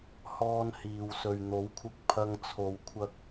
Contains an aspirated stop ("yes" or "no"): yes